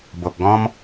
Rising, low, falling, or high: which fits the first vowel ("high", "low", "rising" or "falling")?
low